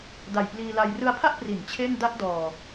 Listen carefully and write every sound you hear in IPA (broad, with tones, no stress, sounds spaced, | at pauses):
d a˨˩ j p l iː˧ l a˧ j r ɯ˧ a̯ pʰ a˥˩ ʔ p r i˩˦ n t͡ɕʰ e˥˩ n d a˥˩ ʔ d ɔː˨˩